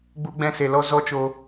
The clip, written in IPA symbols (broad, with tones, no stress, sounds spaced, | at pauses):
ɡ͡b u˧ ɡ͡b ɛ̃˧ s e˨ l ɔ˧ z ɔ˦ t͡ʃ o˧